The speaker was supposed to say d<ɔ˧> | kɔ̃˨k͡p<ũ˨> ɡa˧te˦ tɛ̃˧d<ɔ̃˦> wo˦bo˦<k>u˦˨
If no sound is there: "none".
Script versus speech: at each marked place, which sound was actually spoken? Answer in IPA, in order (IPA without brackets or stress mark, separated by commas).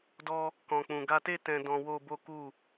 ɔ˧, ũ˨, ɔ̃˧, k